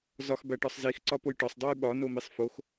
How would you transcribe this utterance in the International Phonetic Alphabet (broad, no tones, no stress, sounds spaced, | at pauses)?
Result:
z ɒ x b æ ʈ ɒ sˤ z i x ǀ ɒ p o j ʈ ɒ sˤ dˤ u j ɓ ɒ n o m i sˤ f o x